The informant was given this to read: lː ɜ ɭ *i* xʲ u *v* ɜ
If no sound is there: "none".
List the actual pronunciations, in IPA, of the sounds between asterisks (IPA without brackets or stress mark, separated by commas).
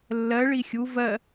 i, v